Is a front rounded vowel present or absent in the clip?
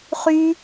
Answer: present